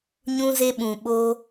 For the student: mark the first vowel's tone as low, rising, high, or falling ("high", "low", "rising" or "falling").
high